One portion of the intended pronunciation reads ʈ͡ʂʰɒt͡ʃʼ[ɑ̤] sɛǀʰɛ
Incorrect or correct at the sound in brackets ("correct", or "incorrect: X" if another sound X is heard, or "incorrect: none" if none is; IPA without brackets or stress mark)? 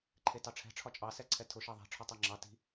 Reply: incorrect: ɑ